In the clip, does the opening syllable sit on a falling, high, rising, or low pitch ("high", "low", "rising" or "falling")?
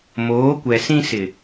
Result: rising